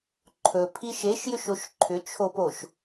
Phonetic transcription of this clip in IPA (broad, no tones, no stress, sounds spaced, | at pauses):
ǃʰ ɵ pʰ i ʃ e ʃ j ʏ ʃ o ʃ ǃʰ ʏ t͡ʃʰ o p o ʃ